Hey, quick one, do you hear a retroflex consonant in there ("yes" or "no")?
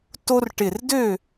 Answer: yes